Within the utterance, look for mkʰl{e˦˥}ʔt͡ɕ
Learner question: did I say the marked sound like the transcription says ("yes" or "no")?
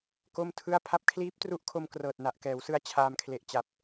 no